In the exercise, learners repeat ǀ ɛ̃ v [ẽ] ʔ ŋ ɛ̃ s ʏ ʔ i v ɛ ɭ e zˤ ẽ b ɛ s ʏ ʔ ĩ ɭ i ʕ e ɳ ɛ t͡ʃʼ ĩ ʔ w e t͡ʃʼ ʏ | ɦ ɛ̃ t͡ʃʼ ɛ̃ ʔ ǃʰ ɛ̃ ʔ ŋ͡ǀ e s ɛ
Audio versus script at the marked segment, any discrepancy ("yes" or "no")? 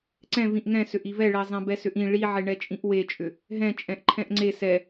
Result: yes